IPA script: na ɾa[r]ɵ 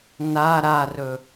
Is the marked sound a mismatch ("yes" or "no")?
no